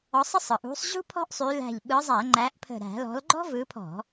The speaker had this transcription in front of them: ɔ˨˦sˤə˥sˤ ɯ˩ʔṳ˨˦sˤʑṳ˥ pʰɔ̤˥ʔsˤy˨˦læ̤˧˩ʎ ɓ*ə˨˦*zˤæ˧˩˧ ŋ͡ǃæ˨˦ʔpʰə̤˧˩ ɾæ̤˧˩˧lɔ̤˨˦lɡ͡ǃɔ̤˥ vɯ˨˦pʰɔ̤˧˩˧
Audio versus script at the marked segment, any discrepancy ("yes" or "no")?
yes